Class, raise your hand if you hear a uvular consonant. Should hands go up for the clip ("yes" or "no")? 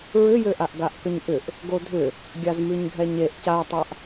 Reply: no